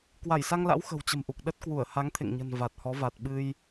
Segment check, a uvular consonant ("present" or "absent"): absent